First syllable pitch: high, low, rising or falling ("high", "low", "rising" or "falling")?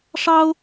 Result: high